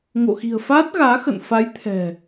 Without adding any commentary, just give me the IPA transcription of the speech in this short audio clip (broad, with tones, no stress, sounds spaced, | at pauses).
ŋ o̰˧˨ x i̤˨˩ ə̯ f aː˦˥ t̚ ɣ aː˨˦ x ə̰˧˨ n f a˨˦ j t̪ʰ ɛ̤˨˩